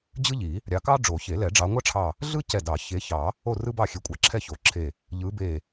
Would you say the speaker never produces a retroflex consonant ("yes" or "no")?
no